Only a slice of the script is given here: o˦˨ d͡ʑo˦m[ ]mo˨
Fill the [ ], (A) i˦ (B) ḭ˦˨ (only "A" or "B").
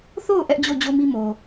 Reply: A